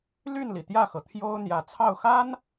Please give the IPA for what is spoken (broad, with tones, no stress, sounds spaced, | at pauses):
l y˥˩ n l i˩ t̪ j ä˥˩ x ɤ˩ t̪ʰ j o˥ ʊ̯ n̪ j ä˨˩ t͡sʰ ɑ˥˩ ʊ̯ x a˥ n